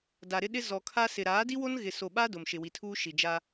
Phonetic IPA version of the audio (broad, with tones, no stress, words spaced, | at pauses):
da˨ɾɪ˦ ɗɪ˦ zɔ˨kʰa˦sɪ˨ ɾaː˨˦di˦wo˦n ɣɪ˨so˨ɓa˦ dʊ˨mʃɪ˨wi˨tʰuː˦ ʃi˨d͡ʒa˦